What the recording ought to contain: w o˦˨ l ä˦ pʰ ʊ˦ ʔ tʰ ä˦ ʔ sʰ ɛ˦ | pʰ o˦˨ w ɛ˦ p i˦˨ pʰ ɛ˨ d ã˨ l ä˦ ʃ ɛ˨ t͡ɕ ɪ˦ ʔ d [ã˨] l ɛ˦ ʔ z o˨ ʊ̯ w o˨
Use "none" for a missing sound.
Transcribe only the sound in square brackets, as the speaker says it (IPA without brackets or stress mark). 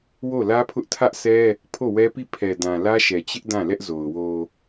ã˦˨